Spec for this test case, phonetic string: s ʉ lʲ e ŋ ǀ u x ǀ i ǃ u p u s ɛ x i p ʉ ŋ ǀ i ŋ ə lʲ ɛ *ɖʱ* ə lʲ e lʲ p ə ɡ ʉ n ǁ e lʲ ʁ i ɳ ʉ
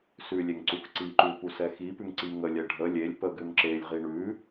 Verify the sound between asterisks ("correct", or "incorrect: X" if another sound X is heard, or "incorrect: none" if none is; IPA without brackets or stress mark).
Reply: correct